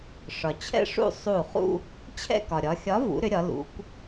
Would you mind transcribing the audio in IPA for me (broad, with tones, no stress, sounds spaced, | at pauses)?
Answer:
ʂ ɒ˩ t͡ɕʰ ɛ̰˥˧ ʂ ṵ˥˧ sˤ u˧˩ χ ṵ˥˧ | t͡ɕʰ ɛ̰˥˧ k ɒ˩ ɾʲ ɒ˩˧ xʲ ɒ˨˥ v ṵ˩˧ ɾ ʏ˩˧ ɾʲ ɒ˩˧ l ṵ˩˧ kʷ